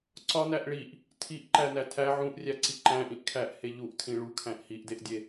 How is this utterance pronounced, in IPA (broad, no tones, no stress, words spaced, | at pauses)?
ǀɒnæʔ ɭiʔ | tʰiʔǃænæ tʰæ ʕũʔrʲæǀi ǃæ̃ʔĩʔ kʰæʔhe ʎuʔtʰĩ ɭukʰæ̃ʔ hiʔdeʔdʲe